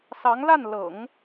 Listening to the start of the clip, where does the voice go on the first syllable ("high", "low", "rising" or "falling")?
rising